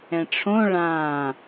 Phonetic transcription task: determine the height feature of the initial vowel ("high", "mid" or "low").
mid